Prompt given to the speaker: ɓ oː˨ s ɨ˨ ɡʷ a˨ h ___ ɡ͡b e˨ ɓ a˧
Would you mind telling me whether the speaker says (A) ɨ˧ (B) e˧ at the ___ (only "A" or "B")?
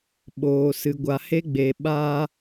B